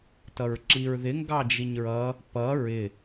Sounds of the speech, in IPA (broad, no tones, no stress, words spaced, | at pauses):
tʌɹǁiɹðɪ ŋɡɑd͡ʒiɲɹʌ | pʌ ɹɪ